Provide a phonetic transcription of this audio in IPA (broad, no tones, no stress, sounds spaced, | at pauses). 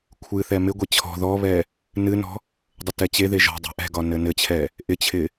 kʷʰ ɨ θ ɛ m ɪ ɡʷ e t͡ɕʰ ɔ̤ ð ɔ β ɛ | n ɨ n ɔ̤ | dˤ ə t ɛ t͡ɕ e ð e ʒ ɔ̤ dˤ ɛ̤ ʔ ɛ̤ ɡ ɒ n ɘ n ɘ t͡ɕʰ ɛ | ʔ ɪ t͡ɕʰ ɪ